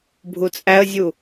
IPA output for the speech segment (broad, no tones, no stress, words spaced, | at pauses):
bʱut͡sʼæə̯zʲu